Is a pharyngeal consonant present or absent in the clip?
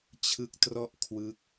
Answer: absent